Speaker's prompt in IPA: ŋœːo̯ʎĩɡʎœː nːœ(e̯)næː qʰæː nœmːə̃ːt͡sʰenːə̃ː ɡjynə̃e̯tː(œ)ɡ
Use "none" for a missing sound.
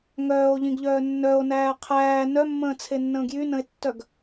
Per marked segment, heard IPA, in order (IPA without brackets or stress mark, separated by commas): o̯, œ